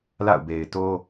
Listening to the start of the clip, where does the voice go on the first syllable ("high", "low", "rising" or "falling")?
falling